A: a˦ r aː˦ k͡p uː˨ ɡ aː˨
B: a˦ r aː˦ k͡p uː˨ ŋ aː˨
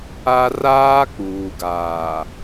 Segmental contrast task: A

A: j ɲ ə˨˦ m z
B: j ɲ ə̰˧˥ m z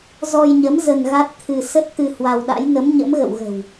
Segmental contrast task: A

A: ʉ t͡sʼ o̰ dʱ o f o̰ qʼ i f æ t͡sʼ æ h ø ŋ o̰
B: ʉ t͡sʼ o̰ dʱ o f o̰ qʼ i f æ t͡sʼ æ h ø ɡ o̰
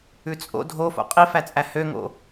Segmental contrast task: A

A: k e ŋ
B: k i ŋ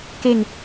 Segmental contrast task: A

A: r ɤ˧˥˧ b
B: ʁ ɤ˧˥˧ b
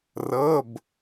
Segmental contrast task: A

